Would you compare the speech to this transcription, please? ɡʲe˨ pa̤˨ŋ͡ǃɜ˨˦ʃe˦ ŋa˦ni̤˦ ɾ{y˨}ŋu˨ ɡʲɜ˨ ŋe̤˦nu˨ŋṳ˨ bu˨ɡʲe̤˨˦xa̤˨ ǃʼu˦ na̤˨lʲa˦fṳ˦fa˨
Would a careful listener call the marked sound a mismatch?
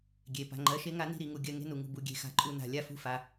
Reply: yes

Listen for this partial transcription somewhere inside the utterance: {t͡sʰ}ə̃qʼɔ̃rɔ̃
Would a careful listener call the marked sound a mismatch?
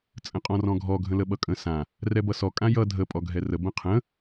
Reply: yes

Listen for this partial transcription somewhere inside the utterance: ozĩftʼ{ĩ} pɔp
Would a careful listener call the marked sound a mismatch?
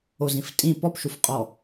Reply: no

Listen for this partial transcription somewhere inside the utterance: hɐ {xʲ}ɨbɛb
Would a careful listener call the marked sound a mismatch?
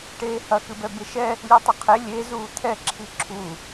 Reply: yes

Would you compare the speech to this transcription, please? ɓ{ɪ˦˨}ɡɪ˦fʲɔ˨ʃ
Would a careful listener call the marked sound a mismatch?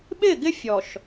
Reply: no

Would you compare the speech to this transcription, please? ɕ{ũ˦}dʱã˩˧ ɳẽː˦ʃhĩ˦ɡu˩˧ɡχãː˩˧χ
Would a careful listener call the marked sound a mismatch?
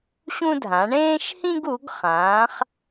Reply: no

